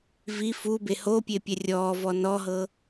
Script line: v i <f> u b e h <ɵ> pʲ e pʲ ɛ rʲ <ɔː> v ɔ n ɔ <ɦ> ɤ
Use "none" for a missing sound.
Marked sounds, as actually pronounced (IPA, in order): f, o, ɔː, ɦ

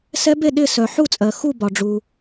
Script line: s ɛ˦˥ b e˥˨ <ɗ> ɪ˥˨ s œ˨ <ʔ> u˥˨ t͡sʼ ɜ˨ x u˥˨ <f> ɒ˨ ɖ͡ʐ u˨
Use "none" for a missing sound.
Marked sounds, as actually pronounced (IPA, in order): ɗ, ħ, b

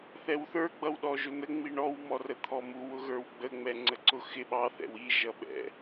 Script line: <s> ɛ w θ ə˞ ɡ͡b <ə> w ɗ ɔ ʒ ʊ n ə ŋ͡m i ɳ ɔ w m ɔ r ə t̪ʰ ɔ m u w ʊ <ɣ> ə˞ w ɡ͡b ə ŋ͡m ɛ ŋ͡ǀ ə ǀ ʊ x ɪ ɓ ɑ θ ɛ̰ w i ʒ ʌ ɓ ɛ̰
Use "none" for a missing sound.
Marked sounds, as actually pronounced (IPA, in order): θ, ʌ, ɣ

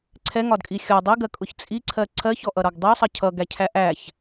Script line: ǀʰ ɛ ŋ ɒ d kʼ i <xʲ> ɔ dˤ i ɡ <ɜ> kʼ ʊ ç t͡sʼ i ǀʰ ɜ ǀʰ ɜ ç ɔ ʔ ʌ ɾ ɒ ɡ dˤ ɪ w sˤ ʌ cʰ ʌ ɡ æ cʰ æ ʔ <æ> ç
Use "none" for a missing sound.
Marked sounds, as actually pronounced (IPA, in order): xʲ, ɜ, æ

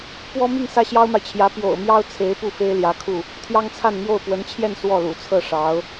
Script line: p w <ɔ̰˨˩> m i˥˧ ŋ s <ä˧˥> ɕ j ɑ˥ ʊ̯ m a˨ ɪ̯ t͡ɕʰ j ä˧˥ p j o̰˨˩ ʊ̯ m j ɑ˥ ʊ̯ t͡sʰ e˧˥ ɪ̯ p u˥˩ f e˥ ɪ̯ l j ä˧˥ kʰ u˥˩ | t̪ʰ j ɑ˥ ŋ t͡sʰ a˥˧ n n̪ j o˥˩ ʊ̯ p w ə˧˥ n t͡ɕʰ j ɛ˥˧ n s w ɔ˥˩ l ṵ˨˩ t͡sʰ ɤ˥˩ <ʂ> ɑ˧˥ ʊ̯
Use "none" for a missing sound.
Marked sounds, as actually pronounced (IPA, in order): ɔ˥, ä˥˩, ʂ

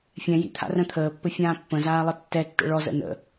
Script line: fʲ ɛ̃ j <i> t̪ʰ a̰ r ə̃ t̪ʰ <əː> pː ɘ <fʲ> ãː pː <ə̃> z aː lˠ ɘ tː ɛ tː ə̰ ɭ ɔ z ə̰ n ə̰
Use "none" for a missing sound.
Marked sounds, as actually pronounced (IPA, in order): ḭ, əː, fʲ, ə̃

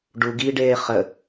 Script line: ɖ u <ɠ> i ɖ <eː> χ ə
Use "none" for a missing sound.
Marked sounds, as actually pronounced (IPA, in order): ɡ, eː

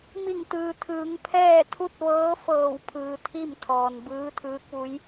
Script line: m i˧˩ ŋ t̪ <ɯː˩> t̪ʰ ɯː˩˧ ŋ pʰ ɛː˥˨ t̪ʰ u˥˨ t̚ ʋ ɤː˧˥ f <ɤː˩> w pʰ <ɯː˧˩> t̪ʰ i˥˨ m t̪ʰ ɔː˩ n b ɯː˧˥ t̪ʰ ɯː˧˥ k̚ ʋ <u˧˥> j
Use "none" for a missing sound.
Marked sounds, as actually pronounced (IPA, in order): ɯː˩, ɤː˧˩, ɯː˩, u˧˥

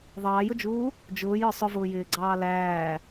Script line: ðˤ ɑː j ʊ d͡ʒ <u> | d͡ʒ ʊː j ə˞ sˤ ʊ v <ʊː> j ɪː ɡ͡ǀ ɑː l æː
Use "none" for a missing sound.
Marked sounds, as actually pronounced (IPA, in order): uː, ʊː

